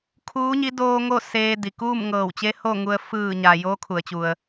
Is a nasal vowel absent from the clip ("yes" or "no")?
yes